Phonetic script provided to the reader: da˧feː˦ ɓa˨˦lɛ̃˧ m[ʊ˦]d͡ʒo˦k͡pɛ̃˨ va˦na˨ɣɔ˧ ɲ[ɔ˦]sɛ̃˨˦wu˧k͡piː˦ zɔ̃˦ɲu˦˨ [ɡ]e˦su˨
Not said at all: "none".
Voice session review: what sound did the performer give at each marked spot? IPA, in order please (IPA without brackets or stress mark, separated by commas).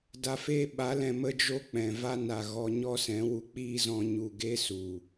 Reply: ə˦, ɔ˦, ɡ